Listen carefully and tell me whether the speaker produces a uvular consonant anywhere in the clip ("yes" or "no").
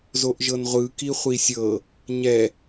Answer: yes